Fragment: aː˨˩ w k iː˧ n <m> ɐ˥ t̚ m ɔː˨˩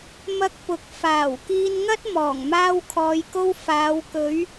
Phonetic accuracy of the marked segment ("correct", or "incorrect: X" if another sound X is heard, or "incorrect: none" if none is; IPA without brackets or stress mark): incorrect: ŋ